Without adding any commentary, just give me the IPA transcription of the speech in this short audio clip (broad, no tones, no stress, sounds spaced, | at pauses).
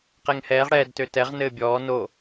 q ɛ ŋ h ɛː ʁ ɽ ɛː d t ø t ɛ ʁ n ɘː bʲ ɔː n o